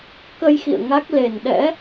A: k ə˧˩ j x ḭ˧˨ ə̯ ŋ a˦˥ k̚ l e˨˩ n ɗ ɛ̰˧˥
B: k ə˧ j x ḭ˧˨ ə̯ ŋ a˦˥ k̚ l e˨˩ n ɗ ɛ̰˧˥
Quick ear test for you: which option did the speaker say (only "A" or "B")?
B